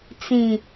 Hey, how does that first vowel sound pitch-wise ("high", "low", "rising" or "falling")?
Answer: low